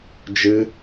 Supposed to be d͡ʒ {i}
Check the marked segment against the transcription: incorrect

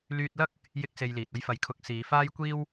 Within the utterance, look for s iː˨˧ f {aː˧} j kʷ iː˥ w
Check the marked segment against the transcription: incorrect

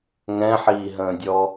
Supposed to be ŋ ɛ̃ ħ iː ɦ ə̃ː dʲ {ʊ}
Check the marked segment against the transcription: incorrect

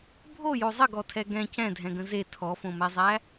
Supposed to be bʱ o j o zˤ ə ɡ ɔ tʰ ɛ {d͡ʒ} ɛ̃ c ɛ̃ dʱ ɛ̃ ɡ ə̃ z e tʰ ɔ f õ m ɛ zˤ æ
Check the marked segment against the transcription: incorrect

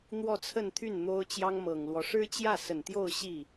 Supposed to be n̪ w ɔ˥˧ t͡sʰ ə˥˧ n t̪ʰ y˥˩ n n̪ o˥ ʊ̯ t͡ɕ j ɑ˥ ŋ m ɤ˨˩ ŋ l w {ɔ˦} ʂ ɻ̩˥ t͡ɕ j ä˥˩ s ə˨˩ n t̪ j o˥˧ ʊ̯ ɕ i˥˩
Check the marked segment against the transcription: correct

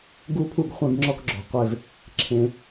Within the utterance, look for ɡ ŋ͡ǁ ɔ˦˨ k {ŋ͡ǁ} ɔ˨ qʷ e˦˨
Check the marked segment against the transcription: incorrect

